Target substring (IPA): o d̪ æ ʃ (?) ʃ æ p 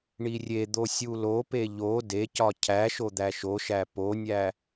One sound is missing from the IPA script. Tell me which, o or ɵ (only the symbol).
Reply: o